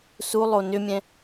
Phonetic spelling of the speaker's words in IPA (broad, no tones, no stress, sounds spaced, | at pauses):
s u lˠ o n ʏ mʲ ɛ̃